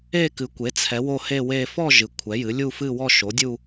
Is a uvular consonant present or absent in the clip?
absent